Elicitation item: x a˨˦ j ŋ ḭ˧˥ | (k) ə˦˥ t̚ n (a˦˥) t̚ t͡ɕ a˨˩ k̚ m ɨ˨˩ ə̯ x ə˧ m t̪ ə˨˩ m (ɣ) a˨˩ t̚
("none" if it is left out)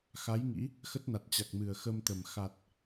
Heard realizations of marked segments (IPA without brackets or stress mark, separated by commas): x, a˨˩, x